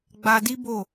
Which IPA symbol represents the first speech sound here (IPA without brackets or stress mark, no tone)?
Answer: ɡ͡b